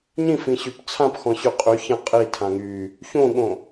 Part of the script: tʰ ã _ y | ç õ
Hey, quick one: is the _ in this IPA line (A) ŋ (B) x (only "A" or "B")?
A